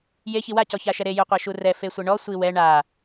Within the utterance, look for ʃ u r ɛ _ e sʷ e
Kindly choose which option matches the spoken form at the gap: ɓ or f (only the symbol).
f